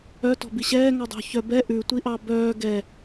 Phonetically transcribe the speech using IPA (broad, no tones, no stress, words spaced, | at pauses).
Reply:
œ tɔ̤biɕɛː ŋɔdˤo̤çœ bɛ ʔʉ tʷiʔɑbœː ɡɛ